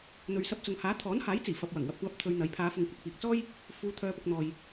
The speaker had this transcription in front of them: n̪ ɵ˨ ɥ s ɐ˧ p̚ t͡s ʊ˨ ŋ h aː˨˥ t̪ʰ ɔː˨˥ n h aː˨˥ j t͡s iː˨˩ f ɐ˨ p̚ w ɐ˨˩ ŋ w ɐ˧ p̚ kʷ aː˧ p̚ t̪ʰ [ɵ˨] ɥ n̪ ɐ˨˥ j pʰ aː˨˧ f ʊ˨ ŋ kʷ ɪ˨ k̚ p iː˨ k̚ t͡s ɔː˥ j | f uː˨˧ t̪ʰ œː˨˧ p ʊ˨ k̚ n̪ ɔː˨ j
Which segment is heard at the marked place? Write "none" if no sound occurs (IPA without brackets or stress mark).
ɵ˧